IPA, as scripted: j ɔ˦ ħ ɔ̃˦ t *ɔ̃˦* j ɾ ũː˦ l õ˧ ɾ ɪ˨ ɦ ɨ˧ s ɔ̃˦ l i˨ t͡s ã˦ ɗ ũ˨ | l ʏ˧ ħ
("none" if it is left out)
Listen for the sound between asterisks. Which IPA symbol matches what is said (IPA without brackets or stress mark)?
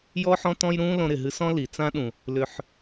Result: ɔ̃˦